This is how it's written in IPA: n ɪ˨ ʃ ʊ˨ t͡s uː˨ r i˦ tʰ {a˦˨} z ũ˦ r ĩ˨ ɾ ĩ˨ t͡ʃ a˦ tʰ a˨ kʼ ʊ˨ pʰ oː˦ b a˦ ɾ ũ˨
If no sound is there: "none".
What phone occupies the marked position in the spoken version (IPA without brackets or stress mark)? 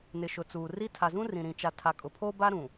a˨